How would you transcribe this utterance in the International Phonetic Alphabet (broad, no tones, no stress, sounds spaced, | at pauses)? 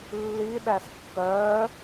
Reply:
lː i ɗ æ s kː œː